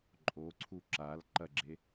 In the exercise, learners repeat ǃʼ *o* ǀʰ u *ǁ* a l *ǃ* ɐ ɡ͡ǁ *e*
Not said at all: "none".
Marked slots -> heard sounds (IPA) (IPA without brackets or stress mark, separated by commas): o, ǁ, ǃ, e